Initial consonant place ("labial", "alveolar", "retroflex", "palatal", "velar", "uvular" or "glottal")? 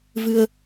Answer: labial